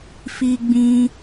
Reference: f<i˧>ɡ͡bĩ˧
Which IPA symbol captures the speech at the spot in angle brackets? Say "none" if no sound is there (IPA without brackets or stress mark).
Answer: i˧